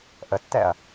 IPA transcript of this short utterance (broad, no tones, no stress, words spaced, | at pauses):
ʔətːɛɐ̯